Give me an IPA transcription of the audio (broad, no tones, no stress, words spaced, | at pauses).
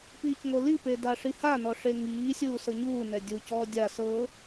piːcŋolipe daʂihanɔ ʂeŋiːsʲuː sɤɲuːnɛ dʲucɔː dʲa sɤ